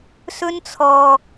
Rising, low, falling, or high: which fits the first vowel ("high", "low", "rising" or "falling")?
high